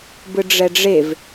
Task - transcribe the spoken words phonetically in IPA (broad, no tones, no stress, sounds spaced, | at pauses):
b ɯ ɖ͡ʐ ɛ ɖ͡ʐ e v